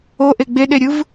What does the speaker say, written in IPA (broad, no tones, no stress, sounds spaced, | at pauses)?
o ʔ e ɡ͡b e ɗ e ɾʲ ɯ v